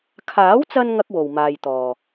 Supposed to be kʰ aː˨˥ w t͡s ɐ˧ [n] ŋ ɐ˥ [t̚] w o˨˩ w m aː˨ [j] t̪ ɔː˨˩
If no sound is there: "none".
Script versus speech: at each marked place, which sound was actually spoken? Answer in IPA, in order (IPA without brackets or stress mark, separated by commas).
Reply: n, k̚, j